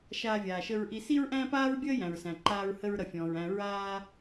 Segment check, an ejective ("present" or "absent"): absent